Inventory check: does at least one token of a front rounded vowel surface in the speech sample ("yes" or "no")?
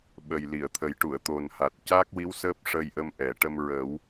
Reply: no